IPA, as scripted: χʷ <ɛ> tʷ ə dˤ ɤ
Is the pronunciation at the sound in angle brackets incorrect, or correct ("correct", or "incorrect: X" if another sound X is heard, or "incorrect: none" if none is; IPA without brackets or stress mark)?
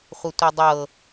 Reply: incorrect: ə